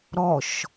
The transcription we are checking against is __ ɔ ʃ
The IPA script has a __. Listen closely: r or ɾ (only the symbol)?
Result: ɾ